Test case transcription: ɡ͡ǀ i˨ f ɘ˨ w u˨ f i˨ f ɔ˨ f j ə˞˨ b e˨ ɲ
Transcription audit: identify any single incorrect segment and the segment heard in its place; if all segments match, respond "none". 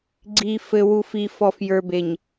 none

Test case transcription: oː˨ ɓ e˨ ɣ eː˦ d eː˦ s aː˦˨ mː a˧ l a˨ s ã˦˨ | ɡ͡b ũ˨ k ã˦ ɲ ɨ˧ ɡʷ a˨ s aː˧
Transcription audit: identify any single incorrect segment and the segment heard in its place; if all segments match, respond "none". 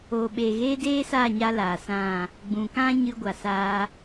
mː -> ɲ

